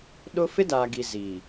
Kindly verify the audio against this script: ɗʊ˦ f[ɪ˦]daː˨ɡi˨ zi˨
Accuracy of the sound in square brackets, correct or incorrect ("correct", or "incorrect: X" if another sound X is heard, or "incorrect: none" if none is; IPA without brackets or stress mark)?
correct